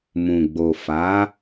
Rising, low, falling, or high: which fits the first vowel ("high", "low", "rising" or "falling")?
low